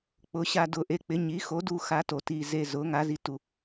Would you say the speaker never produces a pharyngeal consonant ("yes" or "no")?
yes